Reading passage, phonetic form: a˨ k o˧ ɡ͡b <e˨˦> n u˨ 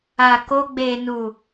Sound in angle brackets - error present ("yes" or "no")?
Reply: yes